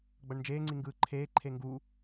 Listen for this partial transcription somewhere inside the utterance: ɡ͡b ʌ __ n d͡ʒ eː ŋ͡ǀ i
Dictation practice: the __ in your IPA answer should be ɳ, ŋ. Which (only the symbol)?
ɳ